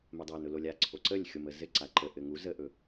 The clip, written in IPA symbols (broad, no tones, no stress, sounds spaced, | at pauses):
m ɘ dˤ æ n ʊ l o lʲ a ǀʰ o ǀ ə lʲ xʲ o m ə z ɘ ǀ a ǃ ə ʔ ɘ ŋ u z ə ʔ ɵ